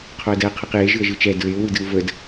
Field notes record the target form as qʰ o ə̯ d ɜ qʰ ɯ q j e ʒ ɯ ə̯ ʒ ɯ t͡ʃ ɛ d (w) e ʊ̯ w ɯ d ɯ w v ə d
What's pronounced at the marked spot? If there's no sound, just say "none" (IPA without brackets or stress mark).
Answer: ɹ